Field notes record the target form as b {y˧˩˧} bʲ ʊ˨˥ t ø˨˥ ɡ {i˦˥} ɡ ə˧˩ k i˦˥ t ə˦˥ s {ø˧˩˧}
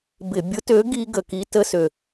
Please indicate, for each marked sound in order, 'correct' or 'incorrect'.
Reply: incorrect: ɪ˧˩˧, correct, incorrect: ø˧˩

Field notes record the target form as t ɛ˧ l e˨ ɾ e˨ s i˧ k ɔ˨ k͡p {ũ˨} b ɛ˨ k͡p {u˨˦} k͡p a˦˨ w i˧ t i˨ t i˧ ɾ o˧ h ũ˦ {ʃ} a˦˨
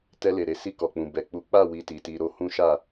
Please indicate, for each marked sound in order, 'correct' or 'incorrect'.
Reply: correct, correct, correct

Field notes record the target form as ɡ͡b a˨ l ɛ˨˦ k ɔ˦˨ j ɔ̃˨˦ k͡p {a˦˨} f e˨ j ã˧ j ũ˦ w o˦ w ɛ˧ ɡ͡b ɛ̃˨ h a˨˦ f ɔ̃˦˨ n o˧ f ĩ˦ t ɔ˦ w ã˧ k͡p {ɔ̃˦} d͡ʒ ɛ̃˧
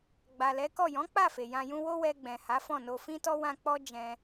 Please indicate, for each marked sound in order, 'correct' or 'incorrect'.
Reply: correct, incorrect: ɔ˦

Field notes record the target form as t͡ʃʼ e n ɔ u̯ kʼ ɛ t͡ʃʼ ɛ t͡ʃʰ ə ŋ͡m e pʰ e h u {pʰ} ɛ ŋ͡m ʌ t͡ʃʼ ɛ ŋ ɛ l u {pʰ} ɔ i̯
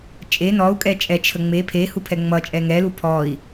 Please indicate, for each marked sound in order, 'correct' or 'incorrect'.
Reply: correct, correct

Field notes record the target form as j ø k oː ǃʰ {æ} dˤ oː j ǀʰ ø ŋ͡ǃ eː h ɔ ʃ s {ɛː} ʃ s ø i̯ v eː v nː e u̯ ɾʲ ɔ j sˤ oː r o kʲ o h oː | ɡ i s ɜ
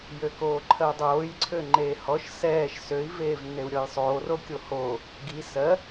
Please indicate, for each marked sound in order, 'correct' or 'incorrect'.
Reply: incorrect: ɜ, correct

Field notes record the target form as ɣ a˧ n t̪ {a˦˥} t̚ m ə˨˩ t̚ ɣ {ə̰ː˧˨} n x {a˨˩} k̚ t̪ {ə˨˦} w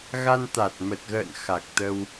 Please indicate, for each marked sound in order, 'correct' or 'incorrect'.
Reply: incorrect: a˨˩, correct, correct, incorrect: ə˧

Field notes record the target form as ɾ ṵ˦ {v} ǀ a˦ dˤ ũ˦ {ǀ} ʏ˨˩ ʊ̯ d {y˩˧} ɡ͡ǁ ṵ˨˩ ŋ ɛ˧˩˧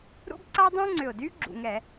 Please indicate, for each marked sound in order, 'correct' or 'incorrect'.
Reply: incorrect: b, incorrect: ŋ͡ǀ, incorrect: y˦

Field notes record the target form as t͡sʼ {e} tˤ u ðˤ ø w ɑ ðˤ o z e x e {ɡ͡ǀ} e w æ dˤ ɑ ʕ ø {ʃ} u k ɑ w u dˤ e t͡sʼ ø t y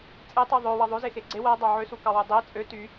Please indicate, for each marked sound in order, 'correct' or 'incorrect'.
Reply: correct, correct, incorrect: s

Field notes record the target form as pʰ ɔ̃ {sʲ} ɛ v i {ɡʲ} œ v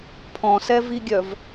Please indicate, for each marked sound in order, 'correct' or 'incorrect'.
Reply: incorrect: s, correct

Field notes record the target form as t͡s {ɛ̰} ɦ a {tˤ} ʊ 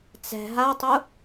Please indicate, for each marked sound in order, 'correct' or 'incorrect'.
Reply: incorrect: ɛ̤, correct

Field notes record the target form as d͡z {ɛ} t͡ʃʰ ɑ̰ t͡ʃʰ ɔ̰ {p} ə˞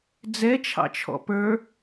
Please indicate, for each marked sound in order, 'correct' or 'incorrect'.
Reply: correct, correct

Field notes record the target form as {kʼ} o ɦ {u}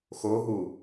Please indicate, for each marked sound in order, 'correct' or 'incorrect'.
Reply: incorrect: x, correct

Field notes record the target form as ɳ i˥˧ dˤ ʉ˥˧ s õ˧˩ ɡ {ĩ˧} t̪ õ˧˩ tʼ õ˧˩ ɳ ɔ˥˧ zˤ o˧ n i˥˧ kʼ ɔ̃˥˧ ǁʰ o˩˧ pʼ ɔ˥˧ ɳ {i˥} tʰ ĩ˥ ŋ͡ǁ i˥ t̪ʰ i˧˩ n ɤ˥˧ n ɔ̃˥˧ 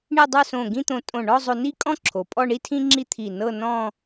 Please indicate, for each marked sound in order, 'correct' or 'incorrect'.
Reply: incorrect: ĩ˥˧, correct

